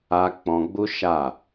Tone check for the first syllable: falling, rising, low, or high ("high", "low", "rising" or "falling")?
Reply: high